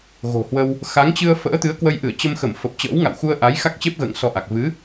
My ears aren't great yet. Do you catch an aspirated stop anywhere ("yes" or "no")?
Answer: no